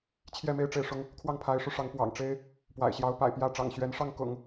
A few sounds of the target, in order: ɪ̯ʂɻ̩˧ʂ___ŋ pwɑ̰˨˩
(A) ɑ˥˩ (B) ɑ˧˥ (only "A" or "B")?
B